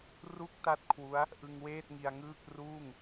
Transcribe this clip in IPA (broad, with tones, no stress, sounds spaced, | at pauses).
r u˥˩ k̚ t a˥˩ t̚ kʰ w u˦˥ a̯ | ʔ ɯ˧ ŋ w eː˥˩ t̚ ŋ i˧ a̯ ŋ ɯː˥˩ k̚ r uː˥˩ ŋ